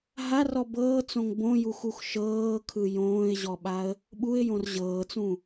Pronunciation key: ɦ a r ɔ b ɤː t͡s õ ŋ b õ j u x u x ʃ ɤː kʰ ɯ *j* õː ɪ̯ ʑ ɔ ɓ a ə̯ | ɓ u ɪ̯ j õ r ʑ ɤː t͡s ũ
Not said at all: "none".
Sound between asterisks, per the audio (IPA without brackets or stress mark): j